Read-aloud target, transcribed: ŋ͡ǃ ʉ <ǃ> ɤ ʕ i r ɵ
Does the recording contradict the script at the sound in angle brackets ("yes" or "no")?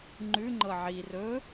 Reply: yes